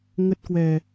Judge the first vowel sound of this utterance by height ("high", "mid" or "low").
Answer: mid